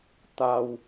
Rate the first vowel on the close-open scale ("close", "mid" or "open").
open